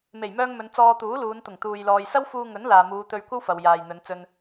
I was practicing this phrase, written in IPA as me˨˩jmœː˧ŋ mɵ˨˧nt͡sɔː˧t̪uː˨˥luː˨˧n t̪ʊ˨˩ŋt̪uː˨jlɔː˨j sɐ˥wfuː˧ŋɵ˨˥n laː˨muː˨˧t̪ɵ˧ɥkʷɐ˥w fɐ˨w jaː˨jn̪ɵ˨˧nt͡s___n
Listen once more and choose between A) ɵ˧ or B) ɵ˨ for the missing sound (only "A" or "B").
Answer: A